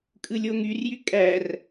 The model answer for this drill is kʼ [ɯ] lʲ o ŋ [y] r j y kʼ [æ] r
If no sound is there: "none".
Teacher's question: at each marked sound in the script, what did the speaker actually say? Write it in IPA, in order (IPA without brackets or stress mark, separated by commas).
ɯ, y, æ